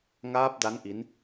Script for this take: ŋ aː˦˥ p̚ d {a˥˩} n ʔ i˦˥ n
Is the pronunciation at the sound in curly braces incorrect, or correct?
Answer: incorrect